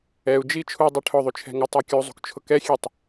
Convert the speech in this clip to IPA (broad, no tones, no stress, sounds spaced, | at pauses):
ɛ u̯ d͡ʒ i t͡ʃʰ u dˤ i ʈʰ ʊ ðˤ u t͡ʃʰ ɛ̤ ŋ o tˤ ɛ kʲ u zˤ ṳ k t͡ʃʰ ʊ k ɛ xʲ e tˤ